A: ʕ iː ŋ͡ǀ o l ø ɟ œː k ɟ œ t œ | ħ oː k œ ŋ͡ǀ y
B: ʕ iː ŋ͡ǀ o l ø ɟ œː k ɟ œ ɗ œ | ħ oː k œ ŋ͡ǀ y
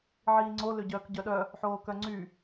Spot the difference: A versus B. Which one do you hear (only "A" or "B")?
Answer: B